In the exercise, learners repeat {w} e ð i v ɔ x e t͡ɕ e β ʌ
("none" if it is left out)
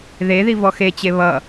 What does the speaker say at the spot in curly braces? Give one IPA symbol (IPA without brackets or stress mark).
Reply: ð